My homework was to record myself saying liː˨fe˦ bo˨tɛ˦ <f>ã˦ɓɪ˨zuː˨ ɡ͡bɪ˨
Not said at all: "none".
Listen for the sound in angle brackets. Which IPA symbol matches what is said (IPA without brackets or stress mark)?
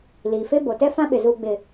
f